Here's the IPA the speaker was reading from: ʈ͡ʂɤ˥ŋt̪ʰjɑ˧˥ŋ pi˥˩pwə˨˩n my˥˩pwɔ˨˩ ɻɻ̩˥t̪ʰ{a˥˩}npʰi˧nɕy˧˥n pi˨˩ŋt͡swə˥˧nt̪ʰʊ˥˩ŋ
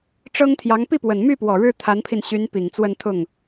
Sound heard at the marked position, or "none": a˧˥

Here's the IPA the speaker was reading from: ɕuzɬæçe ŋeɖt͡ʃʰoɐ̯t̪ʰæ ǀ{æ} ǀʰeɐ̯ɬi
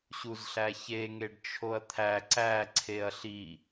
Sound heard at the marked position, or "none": æ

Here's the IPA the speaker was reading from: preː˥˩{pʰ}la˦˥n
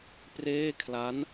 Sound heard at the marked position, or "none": kʰ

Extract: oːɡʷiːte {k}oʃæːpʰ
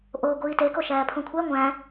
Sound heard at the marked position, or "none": k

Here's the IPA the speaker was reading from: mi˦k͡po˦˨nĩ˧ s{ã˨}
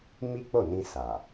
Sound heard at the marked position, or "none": a˨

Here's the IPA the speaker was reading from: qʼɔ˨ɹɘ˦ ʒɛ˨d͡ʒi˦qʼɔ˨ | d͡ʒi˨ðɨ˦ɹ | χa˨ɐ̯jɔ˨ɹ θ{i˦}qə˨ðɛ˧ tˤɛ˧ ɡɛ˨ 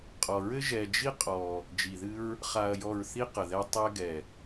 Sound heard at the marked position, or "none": i˦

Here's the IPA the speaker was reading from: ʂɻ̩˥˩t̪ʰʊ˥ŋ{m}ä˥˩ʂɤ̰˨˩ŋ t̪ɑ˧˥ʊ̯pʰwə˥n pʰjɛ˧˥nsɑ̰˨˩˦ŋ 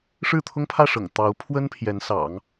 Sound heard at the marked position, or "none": pʰ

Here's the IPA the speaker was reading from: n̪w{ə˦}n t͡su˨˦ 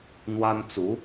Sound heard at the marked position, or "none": a˦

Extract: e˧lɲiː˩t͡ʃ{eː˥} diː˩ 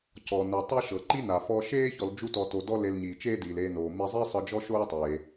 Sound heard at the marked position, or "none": eː˥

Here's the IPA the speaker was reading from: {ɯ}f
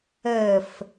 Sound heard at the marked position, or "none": ə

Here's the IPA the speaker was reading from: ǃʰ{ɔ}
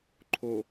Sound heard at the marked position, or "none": o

